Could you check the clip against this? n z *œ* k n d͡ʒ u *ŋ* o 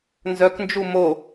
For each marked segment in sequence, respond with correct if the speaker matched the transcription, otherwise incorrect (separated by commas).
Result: correct, incorrect